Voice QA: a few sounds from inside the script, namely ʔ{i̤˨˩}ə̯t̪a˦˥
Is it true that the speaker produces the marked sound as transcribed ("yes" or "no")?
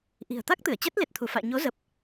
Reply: yes